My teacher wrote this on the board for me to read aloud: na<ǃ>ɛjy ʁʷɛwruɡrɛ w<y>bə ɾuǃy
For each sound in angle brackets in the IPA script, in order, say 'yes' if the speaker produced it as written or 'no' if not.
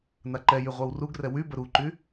yes, yes

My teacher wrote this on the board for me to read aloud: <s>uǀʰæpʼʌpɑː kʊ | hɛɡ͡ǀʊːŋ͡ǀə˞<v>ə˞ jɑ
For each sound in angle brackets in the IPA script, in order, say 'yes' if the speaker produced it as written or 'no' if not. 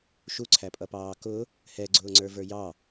no, yes

